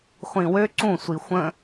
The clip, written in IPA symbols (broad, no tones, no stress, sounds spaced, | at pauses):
χʷ ĩ w ø ǀ ũ sʷ i xʷ ə̃